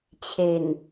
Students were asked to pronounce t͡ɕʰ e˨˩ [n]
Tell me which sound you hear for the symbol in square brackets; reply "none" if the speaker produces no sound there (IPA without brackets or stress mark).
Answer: n